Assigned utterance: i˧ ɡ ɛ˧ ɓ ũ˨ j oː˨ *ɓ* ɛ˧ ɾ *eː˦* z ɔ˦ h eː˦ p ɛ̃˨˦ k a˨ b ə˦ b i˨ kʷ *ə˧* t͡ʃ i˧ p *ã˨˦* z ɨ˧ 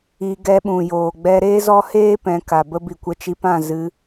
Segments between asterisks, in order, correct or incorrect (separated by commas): incorrect, correct, correct, incorrect